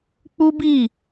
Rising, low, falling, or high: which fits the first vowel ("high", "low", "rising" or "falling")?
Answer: high